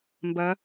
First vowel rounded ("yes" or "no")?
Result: no